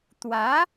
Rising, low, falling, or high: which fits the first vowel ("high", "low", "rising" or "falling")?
rising